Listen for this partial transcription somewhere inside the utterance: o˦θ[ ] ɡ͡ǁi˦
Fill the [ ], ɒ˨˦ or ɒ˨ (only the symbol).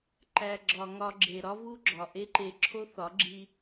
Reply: ɒ˨˦